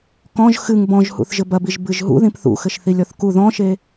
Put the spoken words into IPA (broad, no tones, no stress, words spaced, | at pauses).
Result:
kɔ̃ʒ xɨŋ bɔ̃ʒhṵθ ʒɘbɐbiʒ bɨʒɦṵðĩp θṵxɘʃθilʲ ɔθku ðɔ̃ʃe